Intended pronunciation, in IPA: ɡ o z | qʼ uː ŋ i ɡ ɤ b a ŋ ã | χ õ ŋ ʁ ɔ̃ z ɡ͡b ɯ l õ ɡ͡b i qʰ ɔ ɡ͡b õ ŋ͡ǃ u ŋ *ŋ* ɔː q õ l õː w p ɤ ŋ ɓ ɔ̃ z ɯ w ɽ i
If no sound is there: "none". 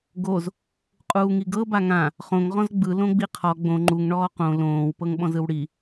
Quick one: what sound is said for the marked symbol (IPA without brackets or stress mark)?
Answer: ɳ